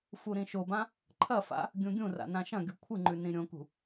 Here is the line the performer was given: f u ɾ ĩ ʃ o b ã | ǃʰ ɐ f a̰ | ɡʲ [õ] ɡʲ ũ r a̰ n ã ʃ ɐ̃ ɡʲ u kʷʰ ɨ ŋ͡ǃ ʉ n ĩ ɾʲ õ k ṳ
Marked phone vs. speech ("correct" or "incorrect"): incorrect